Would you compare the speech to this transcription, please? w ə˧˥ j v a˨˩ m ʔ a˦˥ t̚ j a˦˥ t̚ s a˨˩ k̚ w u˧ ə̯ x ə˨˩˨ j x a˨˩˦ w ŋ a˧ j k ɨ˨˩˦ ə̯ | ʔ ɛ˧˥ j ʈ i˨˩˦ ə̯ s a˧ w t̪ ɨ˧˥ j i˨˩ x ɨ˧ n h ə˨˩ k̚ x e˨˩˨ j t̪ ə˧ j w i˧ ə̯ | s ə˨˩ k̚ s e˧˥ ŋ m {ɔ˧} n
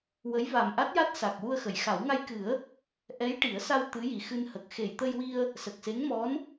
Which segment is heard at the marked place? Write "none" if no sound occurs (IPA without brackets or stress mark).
ɔ˧˥